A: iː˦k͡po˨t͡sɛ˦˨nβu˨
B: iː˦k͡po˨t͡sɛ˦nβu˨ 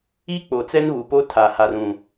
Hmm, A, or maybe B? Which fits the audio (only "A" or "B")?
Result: B